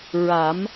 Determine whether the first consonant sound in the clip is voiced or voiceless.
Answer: voiced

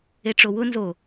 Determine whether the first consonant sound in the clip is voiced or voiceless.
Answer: voiceless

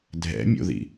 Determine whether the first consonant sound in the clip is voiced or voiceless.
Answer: voiced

